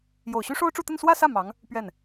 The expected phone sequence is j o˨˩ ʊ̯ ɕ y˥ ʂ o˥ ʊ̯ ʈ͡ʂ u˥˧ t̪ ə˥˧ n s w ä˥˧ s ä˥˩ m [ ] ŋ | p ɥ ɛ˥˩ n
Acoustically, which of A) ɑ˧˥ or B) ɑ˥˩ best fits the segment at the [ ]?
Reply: A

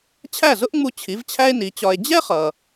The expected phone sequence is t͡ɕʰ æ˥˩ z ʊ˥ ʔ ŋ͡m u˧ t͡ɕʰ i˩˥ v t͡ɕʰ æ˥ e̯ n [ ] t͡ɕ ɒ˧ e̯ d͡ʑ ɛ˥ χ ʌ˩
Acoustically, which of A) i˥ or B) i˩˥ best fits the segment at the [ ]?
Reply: B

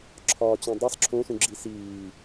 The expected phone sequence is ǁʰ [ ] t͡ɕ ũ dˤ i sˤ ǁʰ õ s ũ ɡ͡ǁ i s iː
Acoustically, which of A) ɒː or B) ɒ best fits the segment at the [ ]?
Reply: A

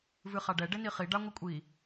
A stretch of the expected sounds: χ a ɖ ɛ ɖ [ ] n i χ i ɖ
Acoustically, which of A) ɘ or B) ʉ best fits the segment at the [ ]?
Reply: A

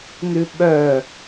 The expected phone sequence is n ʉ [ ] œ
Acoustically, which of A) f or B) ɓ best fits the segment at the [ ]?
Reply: B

